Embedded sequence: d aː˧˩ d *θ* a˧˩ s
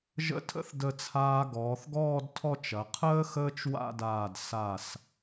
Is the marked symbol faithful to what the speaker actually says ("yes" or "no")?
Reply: no